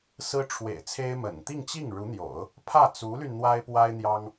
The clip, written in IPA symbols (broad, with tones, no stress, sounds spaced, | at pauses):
s ɹ̩˥ ʈ͡ʂʰ w ḛ˨˩ ɪ̯ t͡sʰ e˥ ɪ̯ m ə̰˨˩ n t̪ i˥˧ ŋ t͡ɕ i˥˩ ŋ ɻ u˧˥ n̪ j o̰˨˩˦ ʊ̯ | pʰ ä˥˩ t͡s u˧˥ l y˧ n n̪ w a˥ ɪ̯ p w a˥ ɪ̯ n̪ j ɑ˥ ŋ